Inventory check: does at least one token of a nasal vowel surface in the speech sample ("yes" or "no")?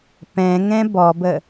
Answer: yes